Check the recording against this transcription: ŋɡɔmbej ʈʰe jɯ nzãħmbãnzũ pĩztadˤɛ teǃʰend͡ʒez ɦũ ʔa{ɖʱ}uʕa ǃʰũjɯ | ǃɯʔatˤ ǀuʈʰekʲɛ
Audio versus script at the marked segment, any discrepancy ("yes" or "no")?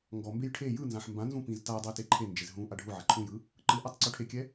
no